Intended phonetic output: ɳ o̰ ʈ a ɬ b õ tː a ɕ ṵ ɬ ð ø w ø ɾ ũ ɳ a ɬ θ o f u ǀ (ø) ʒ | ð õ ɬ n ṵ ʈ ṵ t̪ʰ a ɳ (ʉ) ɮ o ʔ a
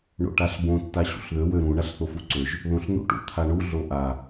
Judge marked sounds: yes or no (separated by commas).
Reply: yes, no